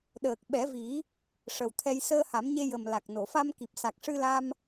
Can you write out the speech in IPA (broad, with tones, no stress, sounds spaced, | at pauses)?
ɗ əː˨˩ k̚ ɓ ɛ˨˩˦ v i˨˩˦ | ʂ ə˨˩ w t̪ʰ ɛ˧ j s əː˧ h a˨˩˦ m ɲ e˧ j ə˨˩ m l a˨˩ k̚ n o˨˩˨ f a˧ m k i˨˩ p̚ s a˨˩ k̚ ʂ ɨ˧ l a˧ m